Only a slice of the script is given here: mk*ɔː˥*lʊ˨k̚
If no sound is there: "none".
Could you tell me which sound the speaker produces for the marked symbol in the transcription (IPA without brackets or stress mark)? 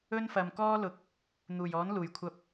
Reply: ɔː˥